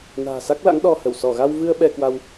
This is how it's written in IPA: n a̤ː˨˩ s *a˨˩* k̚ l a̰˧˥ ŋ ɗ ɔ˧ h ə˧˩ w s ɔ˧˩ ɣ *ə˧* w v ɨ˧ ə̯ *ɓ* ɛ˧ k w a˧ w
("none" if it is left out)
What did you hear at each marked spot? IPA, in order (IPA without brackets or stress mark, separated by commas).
a˦˥, a˧, ɓ